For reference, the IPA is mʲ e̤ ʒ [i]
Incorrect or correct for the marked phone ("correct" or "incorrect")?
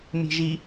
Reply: correct